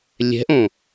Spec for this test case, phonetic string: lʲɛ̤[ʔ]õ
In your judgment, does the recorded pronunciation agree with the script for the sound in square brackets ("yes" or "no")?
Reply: yes